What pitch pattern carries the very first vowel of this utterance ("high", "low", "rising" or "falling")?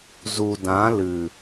low